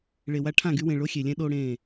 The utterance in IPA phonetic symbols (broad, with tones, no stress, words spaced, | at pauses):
ɭe˨wa˦ ʈʰã˦˨ɡy˦wẽ˨ ɭo˦xʲe˨lʲɛ̃˦ ɗo˦ɽẽ˦˨